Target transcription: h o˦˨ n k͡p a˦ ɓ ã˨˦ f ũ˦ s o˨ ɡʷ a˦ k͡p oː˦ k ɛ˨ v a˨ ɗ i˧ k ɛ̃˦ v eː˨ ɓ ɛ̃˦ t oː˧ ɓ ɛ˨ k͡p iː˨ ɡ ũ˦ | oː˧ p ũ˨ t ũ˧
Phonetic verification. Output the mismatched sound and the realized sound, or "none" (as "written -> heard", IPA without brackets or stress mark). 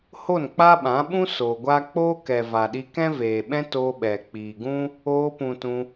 f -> ɓ